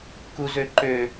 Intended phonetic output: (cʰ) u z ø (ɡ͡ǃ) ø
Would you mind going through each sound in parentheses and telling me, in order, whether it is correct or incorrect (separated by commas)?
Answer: incorrect, incorrect